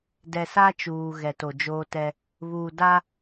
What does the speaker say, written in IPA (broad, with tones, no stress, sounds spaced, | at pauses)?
d ɛ˨ s a˦ t͡ʃ uː˨ ɣ ɛ˨ t o˨ d͡ʒ oː˦ t ɛ˦ | β uː˨ d a˦